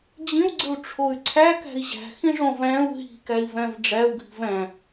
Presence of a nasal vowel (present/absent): present